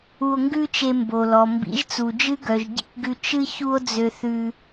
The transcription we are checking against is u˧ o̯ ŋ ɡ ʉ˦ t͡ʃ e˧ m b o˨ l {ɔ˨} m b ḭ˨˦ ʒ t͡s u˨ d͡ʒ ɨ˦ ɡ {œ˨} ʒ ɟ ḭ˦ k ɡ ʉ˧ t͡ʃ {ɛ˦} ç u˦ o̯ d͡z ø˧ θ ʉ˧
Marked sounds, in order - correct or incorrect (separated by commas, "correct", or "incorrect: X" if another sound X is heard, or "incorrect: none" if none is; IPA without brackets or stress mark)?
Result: correct, correct, incorrect: ɨ˦